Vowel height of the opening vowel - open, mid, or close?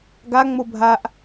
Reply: open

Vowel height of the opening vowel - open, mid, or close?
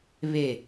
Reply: mid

